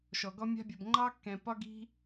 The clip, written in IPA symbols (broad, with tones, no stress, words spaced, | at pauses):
ʃɔ˨ɡɔ˦ mʲa̤˧bʲɐ˨b ŋ͡ǃɑ˦kːɛ̃˨pɒ˦ɡi̤˦